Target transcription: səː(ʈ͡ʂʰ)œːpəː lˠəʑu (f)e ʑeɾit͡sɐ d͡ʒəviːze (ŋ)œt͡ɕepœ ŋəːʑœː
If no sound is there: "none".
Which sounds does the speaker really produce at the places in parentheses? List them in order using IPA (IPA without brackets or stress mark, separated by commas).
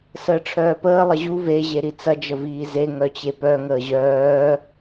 ʈ͡ʂʰ, v, ŋ